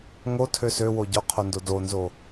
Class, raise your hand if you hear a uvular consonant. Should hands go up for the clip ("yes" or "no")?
yes